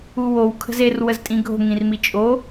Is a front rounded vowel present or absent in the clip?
absent